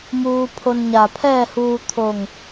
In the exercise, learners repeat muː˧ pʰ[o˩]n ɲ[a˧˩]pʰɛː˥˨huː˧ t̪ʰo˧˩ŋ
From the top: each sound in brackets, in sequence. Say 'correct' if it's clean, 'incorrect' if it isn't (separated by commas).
incorrect, correct